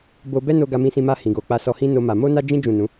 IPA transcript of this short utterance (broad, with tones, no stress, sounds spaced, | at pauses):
b o˧ b ɛ˦ n o˧ ɡ a˧ m ĩ˧ s ĩ˧ m a˧ h ĩ˨ ɡ o˨ k͡p a˧ s ɔ˧ h ĩ˦ n o˦ m a˧ m o˦ n a˦ d͡ʒ ĩ˦ d͡ʒ ũ˦˨ n ũ˨˦